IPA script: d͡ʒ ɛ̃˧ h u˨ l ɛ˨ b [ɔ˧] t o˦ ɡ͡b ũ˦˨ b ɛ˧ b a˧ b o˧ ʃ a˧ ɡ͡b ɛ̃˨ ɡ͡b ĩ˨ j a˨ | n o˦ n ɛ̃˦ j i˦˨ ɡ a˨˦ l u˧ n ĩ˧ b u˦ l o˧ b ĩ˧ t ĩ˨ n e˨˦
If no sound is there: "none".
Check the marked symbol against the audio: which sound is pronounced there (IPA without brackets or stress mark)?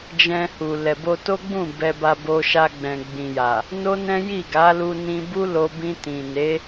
o˧